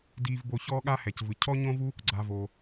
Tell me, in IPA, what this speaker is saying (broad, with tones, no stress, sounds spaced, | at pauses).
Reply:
d iː˨ v b o˨ ç ɔː˦ ɠ a˦ h ɛ˩ c v ɯ˩ cʰ ɔ˥ ɲ õ˥ v u˥ | ɡ͡ǀ a˨ v o˩